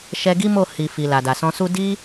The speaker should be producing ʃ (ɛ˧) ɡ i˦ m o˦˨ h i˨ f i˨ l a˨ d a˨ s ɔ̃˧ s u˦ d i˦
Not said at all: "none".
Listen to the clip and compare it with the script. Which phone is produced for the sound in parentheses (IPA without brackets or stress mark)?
ɛ˧